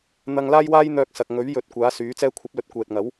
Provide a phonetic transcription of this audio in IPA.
n̪ ɐ˧ ŋ l aː˥ j w aː˥ j n̪ œː˧ k̚ s ɐ˨ k̚ ŋ ɵ˨˥ ɥ j ɵ˨˥ t̚ kʷ aː˨˥ s yː˨˥ t͡s ɛː˧ kʷʰ ɐ˨˥ p̚ l ɵ˨ t̚ kʷ ɛː˨ t̚ ŋ ɐ˨˥ w

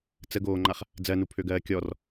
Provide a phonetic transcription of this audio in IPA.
t͡s ə ɡ oː ŋ͡ǃ a χ | d͡z ɜ n u pʰ ø ɡ ɜː kʲ ɔ r

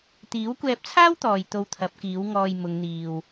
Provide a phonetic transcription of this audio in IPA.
t̪ iː˨˥ w kʷ ɛː˧ p̚ t͡sʰ aː˥ w t̪ ɔː˨ j t̪ o˧ w t̪ʰ ɐ˨˥ p̚ k iː˨˥ w ŋ ɔː˧ j m ʊ˨˧ ŋ n̪ iː˨ w

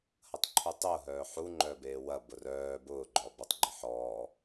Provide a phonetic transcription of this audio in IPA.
h ɐ tˤ ǃʰ u tˤ ʊː ɦ œː ħ u ŋ͡ǃ œ b eː w ɐ b ʊ r œː b ʊː ɡ͡ǃ ɔ b œ tˤ ɡ͡ǃ ɪ ħ ɔː

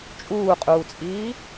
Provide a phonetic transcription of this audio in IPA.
t͡ʃʼ uː qʼ uː t͡sʼ iː

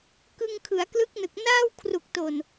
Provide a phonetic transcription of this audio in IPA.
k ɯ˧ ŋ kʰ ɯ˩˦ a̯ k l ɯ˦˥ k̚ n ɯ˨˩ k̚ n aː˥˩ w kʰ r u˨˩ k̚ t oː˨˩ n

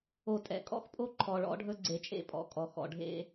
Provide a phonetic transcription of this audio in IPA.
o˨ tʼ ɛ̰˨ kʼ ɔ̰˦ x pʼ o˦ ǃʰ ɔ˨ ɭ ɔ̰˨˦ ɖʱ ɵ˦ ɡ͡ǀ e˨ t͡ʃʼ ḛ˦ pʼ ɔ̰˨ kʼ ɔ˨ x ɔ̰˨ ɖʱ ḛ˦

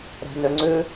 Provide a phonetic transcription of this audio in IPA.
ɾ ɛ̤ n ø ŋ͡ǀ ʉ

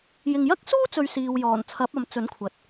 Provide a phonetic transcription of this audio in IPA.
j ɪ˨ ŋ j ɐ˥ k̚ s uː˥ t͡s ɵ˨ ɥ s iː˨ w j ɔː˨˩ n t͡sʰ ɐ˨˥ p̚ ɐ˨ m t͡s ɵ˨˥ n kʷʰ ɐ˨ t̚

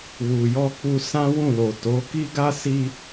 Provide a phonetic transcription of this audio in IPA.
w u˨ j ɔ˧ k͡p u˧ s ã˦ w ũ˦˨ l o˨ t o˨˦ k i˦ ɡ a˦ s i˧

